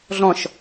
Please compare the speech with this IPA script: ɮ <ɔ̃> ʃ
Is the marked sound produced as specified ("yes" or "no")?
yes